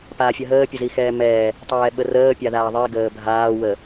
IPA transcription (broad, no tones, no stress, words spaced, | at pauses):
paːfʲəɦəː pʲəzixɛːmɛː | tˤɛːɓərəː pʲaðaːðˤi ɡəːbʱaː wə